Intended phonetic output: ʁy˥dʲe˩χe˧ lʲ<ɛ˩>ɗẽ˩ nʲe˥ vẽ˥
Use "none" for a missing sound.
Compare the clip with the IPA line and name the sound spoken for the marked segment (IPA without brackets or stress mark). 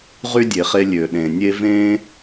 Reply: ø˩